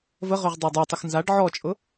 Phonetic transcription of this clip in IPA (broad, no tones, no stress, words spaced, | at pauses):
vəʁʏʁ dˤadˤutˤəx nzaɖ ʕɔt͡ʃʼʊ